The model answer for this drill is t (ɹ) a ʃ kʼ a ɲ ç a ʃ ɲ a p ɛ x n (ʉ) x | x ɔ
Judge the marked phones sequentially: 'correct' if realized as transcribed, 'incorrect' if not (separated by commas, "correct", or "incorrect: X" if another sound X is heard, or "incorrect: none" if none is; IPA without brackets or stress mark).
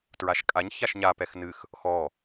correct, incorrect: ɨ